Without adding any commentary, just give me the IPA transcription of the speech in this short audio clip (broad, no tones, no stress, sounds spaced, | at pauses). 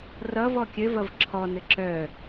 r ʌ v ɔ kʲ ɘ v ʌ v ǁʰ ɔ n ɘ ǁ œ